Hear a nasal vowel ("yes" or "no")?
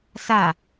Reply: no